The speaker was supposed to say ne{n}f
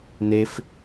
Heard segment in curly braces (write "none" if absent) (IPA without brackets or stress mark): none